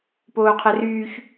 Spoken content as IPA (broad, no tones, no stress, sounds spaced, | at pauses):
p oː qʰ ɛ r yː ç